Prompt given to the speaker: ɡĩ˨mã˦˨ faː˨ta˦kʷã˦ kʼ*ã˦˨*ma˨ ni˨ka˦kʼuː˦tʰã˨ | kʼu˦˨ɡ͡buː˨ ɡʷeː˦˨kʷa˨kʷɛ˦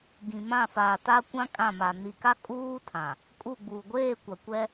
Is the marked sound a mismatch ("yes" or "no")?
no